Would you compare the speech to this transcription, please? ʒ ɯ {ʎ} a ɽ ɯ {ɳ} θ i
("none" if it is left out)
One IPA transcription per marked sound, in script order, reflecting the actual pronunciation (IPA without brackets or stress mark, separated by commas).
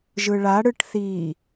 ɭ, ʈ